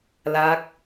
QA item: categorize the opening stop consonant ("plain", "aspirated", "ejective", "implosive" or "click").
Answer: plain